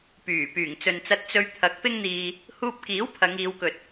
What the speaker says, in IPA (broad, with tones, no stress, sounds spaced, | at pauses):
p yː˨˩ p yː˨˩ ŋ t͡s ɵ˨ n t͡s ɐ˧ t̚ t͡s ɵ˧ ɥ t̪ʰ ɐ˨˥ k̚ p ɪ˥ ŋ n̪ iː˧ | h uː˧ p̚ k iː˨˥ w pʰ ɐ˨˧ ŋ iː˨˧ w k ɵ˨ t̚